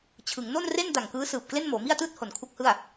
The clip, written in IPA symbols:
t͡ɕʰɯ˩˦ŋno˥˩nre˥˩n da˨˩ŋkɯː˦˥sɯː˨˩p̚ kle˥˩nmoː˩˦mi˥˩a̯tɯː˥˩t̚ ho˨˩nkʰu˦˥k̚hɯ˥˩a̯

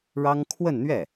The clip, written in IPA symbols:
ɻɑ˥ŋ kʰwə˥˧nn̪ɥɛ˥˩

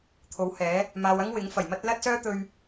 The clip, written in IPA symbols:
t̪ʰo˨˥whɛː˨˥ | maː˨wɐ˥ŋwɪ˨˥ŋ fɐ˨˩jmɐ˥t̚ lɐ˥t̚sœː˥t̪ɵ˧ɥ

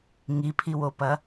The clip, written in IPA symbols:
ŋipʰiwopɐ

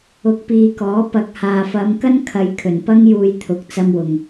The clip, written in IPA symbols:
ʊ˨k̚piː˨kɔː˨˥ pɐ˨k̚haː˨fɐ˨˧mkɐ˥n kʰɐ˨˧j kʰɵ˨˩npɐ˥ŋ juː˧jt̪ʰʊ˨˥k̚t͡sɐ˧mwʊ˨ŋ

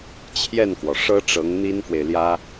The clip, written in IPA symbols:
t͡ɕʰjɛ˥˩nkwɔ˩ʂɤ˥ ʈ͡ʂɤ˧˥ŋn̪i˥nkwe˨ɪ̯ljä˥

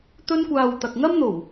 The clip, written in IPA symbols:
t̪ɵ˥nkʷaː˧w t̪ɐ˨k̚ŋɐ˥mn̪o˨˩w

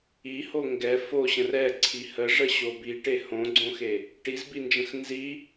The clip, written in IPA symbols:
iho ŋɡɛ foɕə̃r ɛǀʰi həʐəɕo biʈe hõɡ͡ǀõxe | ʈizbind͡ʒə̃x nzi

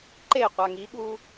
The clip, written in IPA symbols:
ǃe qʷaŋiɠu

